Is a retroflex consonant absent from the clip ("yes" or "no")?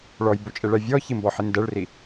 no